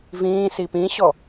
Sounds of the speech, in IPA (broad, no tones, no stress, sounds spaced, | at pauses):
v ĩː s i p ĩ ɕ ɔ